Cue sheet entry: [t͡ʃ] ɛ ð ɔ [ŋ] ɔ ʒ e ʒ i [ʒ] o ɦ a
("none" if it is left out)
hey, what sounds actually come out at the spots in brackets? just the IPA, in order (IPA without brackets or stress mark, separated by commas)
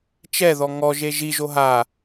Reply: t͡ʃ, ŋ, ʒ